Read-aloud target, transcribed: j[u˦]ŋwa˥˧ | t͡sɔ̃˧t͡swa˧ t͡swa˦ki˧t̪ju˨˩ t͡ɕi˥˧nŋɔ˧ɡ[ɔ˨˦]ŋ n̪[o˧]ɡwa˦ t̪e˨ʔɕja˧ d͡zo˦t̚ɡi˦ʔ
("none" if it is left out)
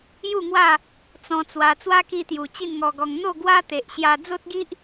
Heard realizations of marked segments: u˥˧, ɔ˧, o˥˧

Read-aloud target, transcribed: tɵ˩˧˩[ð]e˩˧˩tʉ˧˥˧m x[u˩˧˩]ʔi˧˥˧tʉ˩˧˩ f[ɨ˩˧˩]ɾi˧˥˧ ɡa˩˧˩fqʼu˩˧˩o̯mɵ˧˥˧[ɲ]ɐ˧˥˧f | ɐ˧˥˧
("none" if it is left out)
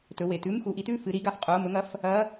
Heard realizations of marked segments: w, u˩˧˩, ɨ˩˧˩, ŋ

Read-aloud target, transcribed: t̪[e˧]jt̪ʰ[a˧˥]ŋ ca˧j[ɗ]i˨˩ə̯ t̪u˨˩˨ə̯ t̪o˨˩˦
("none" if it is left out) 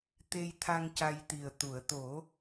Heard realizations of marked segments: e˧, a˧, t̪

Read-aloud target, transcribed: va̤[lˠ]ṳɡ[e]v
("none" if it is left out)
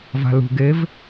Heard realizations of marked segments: l, e

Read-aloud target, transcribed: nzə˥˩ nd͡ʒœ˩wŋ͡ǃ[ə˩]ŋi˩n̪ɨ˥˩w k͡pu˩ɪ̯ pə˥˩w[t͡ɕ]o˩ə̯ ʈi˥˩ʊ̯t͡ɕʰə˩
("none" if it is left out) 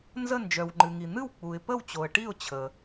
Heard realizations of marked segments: ɨ˩, t͡ɕ

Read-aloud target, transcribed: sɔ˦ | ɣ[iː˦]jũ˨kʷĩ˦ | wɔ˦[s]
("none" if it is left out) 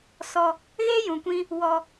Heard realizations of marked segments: eː˦, none

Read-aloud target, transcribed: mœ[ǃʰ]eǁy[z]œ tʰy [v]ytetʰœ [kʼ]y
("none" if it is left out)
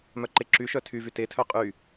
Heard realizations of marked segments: ǃ, ʃ, v, qʼ

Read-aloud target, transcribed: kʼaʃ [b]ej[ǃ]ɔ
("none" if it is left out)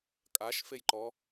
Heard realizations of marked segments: f, ǃ

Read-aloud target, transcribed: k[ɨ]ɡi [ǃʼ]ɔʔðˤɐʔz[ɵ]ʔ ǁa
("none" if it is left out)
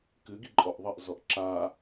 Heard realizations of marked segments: ɨ, ǃʼ, ɔ

